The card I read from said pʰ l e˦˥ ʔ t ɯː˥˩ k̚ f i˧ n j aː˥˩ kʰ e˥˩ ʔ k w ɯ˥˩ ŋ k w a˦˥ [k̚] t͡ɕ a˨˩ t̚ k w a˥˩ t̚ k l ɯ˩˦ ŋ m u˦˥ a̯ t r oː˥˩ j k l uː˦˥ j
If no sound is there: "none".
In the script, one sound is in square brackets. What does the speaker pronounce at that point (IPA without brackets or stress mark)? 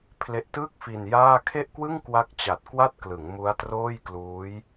k̚